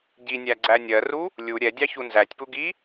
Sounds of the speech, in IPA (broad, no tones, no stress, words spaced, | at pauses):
ɟinʲæɡ͡ǀæ nʲɜru | lʲu ɾʲɛdʲɑçu nzætʲpuɡi